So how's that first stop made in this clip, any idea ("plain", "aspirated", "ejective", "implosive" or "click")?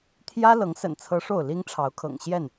aspirated